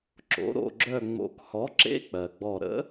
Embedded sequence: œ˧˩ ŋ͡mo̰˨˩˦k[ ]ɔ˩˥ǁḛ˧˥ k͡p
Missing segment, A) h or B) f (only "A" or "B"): A